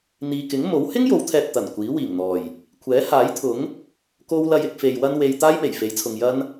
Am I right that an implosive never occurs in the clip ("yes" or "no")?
yes